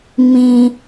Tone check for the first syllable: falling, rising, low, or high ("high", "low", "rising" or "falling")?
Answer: low